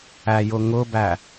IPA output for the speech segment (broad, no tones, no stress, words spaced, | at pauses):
æjʊŋʊbæ